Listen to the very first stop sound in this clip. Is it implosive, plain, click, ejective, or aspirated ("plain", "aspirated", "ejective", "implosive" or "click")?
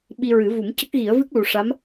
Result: implosive